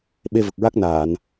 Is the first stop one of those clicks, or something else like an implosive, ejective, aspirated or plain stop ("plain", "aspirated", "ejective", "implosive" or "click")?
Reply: implosive